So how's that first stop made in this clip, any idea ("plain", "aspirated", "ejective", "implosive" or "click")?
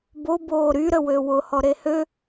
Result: plain